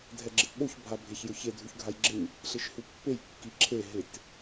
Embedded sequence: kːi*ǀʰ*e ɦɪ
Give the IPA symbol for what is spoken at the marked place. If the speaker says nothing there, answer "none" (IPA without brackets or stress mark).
ǁʰ